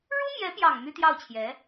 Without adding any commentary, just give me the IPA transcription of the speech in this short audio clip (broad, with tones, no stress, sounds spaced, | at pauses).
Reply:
ɻ u˥ m j ɛ˧˥ p j ɑ˨˩ ŋ m y˥ t̪ j ɑ˥˩ ʊ̯ t͡ɕʰ j ɛ˧˥